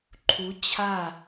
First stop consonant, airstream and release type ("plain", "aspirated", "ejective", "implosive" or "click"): click